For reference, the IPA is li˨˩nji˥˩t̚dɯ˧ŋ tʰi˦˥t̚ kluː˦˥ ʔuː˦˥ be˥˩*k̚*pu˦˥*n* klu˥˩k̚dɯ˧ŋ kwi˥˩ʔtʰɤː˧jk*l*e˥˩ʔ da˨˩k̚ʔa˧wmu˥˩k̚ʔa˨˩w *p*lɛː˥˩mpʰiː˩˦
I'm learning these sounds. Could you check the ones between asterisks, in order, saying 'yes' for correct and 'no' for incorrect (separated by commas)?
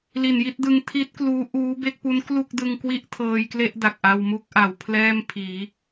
yes, yes, yes, no